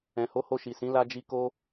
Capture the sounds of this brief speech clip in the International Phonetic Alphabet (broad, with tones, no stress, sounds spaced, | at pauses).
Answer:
ɛ̃˨ h o˨˦ h o˧ ʃ i˨ s ĩ˨˦ l a˦ d͡ʒ i˦ k o˦